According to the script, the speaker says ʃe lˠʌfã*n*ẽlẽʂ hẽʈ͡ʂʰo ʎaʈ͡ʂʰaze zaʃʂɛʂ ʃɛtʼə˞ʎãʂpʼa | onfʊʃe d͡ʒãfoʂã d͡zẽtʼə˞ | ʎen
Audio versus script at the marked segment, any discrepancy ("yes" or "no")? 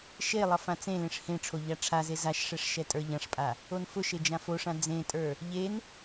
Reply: yes